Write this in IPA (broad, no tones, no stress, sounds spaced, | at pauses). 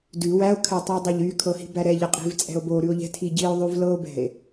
d ʉ w æ o̯ kʰ ɛ tˤ æ dˤ æ ʎ y kʰ ɤ h i̤ b æ ɾ ɛ ʎ æ qʼ i̤ v t͡sʼ ɛ̤ o̯ b o ɾ ʉ o̯ ʎ ɛ̤ tʰ i ɟ i o̯ ðˤ ʉ v l ɤ o̯ b ɛ̤ e̯